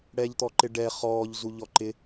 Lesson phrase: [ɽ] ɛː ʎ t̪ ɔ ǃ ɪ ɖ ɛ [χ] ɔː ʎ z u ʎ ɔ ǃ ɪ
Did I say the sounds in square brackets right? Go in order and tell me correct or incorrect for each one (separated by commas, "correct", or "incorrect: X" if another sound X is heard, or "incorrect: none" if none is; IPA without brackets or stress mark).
correct, correct